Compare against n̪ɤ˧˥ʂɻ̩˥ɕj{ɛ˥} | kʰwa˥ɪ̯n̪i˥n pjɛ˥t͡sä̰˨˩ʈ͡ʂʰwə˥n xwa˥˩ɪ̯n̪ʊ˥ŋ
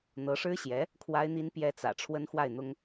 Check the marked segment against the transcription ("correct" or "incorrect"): incorrect